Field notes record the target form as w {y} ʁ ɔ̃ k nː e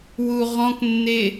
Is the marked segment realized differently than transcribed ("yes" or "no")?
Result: yes